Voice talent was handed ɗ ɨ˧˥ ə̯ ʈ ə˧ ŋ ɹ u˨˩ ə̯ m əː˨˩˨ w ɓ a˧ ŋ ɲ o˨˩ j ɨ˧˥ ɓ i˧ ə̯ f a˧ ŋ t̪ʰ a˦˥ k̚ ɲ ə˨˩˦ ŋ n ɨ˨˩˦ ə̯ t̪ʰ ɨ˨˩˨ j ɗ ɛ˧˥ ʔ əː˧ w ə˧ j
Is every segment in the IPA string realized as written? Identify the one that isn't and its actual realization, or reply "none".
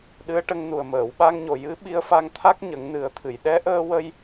ɹ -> n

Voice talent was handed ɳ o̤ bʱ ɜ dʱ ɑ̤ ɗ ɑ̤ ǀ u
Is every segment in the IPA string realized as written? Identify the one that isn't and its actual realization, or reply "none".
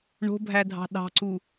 ɜ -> æ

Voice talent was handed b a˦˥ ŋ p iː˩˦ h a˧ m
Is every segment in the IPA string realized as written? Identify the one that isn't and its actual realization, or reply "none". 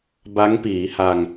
m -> ŋ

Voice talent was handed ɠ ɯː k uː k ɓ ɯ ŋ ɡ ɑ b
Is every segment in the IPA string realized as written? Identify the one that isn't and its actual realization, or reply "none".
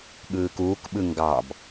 none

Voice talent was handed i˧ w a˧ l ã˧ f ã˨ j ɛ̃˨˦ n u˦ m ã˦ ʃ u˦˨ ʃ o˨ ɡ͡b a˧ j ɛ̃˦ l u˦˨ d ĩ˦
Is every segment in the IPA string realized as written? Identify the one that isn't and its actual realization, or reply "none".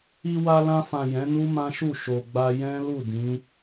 ĩ˦ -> ĩ˨˦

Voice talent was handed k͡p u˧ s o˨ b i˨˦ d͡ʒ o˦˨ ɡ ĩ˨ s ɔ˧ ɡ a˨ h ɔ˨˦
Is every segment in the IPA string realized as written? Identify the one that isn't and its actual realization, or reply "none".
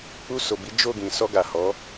none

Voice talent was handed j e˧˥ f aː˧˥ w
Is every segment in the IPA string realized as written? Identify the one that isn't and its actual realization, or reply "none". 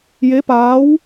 f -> p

